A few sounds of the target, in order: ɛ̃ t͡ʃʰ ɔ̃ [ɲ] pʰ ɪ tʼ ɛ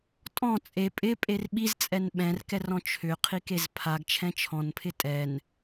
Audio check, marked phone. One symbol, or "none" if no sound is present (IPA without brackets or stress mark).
n